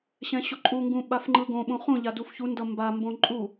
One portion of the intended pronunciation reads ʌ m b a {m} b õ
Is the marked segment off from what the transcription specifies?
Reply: no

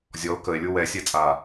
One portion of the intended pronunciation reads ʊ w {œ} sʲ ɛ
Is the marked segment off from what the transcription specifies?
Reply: yes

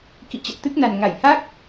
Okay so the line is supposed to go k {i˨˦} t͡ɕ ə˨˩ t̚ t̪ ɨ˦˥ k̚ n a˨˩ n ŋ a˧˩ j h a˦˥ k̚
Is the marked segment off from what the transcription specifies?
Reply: yes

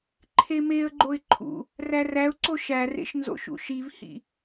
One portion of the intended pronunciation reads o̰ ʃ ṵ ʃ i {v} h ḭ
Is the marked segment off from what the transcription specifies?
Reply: no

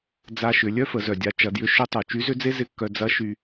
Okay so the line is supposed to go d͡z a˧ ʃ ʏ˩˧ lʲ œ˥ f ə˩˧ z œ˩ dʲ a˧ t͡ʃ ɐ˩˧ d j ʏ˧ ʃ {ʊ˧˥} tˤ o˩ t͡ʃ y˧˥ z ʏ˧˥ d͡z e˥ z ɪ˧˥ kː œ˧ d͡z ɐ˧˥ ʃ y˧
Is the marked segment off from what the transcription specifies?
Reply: no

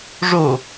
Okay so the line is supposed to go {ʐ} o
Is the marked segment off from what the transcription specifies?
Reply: no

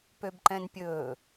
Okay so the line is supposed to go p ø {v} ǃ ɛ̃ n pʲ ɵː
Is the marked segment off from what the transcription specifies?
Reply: yes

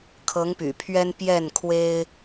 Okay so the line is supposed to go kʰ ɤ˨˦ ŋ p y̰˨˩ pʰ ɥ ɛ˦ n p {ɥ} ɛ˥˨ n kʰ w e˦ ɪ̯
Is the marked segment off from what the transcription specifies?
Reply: yes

